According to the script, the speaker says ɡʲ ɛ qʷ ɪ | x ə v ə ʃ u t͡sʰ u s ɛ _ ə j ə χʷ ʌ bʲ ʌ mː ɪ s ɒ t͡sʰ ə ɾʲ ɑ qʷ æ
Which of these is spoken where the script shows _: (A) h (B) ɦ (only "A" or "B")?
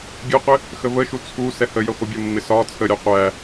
A